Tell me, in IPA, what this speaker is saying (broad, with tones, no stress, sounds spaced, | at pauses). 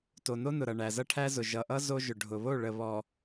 t o˨ n o˦ n ʊ˨ ɾ ʌ˨ ɳ æ˨ z ʌ˦ ʈʰ æ˦ z ʊ˨ ʒ ʌ˨ ʔ ʌ˦ z o˦ ʒ ʊ˨ ɖʱ ʊ˨ β o˦˨ ɭ ə˨ β ɔ˨